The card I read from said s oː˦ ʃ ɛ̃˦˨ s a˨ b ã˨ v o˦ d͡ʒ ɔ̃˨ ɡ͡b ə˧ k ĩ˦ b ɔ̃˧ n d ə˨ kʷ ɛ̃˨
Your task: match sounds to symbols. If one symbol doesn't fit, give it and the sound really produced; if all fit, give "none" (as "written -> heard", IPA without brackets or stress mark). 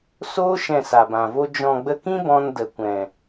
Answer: none